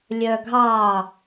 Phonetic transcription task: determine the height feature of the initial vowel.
mid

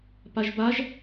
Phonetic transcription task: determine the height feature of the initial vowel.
low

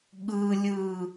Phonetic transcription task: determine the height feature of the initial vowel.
high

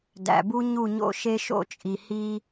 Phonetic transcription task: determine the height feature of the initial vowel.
low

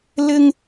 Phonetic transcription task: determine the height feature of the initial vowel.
high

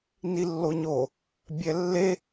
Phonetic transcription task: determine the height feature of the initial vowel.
high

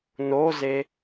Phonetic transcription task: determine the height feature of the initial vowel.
mid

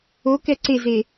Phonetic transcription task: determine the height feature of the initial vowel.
mid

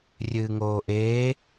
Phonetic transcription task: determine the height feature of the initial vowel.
high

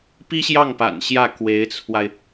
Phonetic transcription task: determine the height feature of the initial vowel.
high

